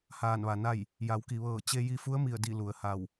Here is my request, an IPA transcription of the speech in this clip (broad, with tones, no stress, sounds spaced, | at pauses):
h aː˧˩ n ʋ a˩ n a˥˨ j | j a˩˧ w k i˩ ʋ ɤː˧˩ t͡ɕ e˧ j i˧ f u˧˥ ə̯ m i˧˩ ə̯ d i˧˩ l u˩ ə̯ h a˧˩ w